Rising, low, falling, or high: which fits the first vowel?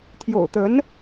low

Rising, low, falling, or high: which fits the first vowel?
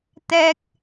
high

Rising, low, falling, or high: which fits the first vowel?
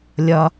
low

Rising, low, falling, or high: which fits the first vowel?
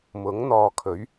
rising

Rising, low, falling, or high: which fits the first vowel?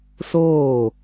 falling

